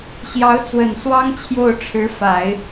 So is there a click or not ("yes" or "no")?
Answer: no